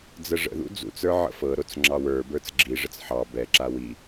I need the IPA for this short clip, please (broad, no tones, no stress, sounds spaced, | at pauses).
d͡z ə ʐ ə̰ ð ṵ d͡z ṵ t͡s ə˞ ʕ ə̰ f ɤ ɾ o t͡s ŋ͡ǁ ɑ w ə˞ b ə˞ t͡s ɡ͡ǁ i ʐ ə t͡s ħ ɑ b ɛ ǁ a w i